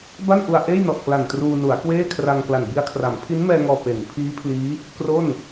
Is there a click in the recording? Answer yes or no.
no